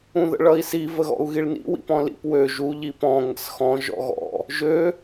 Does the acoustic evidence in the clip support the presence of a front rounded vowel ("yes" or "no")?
yes